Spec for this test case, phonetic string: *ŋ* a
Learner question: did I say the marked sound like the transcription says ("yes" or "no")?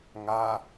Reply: yes